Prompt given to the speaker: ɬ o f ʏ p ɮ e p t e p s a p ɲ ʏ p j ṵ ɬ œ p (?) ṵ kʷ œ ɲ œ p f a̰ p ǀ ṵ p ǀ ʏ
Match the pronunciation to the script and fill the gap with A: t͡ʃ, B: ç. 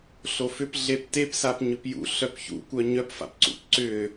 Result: B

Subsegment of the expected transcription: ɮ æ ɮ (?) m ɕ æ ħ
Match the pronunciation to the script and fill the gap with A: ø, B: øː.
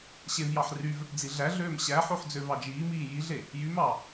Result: B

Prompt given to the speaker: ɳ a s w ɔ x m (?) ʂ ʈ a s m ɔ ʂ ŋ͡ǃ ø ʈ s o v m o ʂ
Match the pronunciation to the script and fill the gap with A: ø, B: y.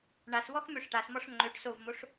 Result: A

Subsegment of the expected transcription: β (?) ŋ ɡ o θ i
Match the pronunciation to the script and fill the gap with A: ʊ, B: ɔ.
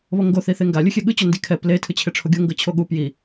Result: B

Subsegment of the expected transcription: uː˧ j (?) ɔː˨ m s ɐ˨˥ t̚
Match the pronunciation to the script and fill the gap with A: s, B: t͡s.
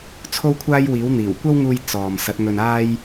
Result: B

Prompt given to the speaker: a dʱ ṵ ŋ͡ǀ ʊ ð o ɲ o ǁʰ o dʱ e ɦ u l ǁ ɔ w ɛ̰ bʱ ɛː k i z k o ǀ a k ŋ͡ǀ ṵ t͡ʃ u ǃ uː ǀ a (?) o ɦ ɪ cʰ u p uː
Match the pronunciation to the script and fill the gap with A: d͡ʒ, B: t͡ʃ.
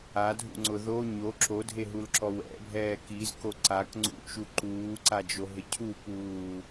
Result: A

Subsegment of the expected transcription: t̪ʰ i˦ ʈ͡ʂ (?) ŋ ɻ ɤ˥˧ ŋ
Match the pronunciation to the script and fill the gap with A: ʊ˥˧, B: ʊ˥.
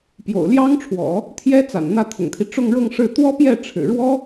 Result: A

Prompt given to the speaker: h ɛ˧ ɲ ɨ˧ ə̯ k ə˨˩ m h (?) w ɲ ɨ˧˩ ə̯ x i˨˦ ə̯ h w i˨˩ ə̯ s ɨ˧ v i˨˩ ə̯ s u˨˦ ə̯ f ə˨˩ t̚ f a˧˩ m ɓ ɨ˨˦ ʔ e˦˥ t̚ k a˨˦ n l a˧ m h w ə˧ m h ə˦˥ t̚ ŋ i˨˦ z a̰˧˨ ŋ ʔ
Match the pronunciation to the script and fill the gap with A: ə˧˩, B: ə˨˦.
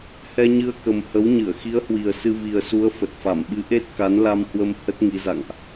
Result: B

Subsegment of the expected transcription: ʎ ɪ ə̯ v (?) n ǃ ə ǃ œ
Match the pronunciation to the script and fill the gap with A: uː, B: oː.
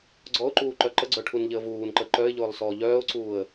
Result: A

